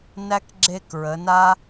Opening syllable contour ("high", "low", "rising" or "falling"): high